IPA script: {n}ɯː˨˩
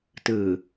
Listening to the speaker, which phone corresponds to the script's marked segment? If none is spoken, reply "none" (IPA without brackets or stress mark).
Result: t